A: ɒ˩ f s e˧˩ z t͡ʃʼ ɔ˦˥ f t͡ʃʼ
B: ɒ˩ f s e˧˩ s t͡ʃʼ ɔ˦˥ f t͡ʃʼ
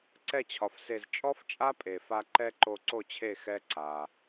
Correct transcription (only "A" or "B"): A